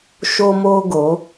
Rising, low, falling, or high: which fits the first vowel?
high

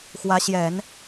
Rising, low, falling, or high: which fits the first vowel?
rising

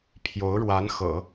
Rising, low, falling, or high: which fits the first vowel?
rising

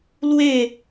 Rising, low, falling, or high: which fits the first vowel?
falling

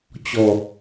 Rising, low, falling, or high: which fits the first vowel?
low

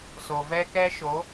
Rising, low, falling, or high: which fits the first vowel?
low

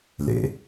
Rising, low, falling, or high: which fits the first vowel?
low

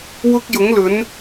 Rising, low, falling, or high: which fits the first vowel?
high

